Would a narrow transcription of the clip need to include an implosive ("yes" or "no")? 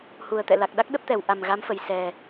yes